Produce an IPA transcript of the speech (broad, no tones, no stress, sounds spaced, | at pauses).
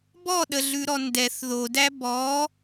b ɔ ɗ ə ɮ ʉ ɾ ɔ n d ɛ θ ð o d æ b ɔ